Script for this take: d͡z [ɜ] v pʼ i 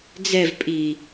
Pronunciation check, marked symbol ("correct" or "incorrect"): incorrect